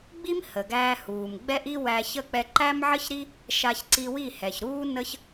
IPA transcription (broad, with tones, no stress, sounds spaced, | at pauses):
ɡ͡b i˦ m h ə˨ ɡ æː˧ h uː˨ m ɡ͡b ɛ˦ ʔ i˦ w æ˧ ç ə˦˨ k͡p ɛ˧ ǃ æ˦ m ʕ ə˦ ç ɾ i˦ | ʃ a˧ ç ǀ i˧ w i˦˨ h ɛ˨ ç ɾ uː˦ n ə˦ ç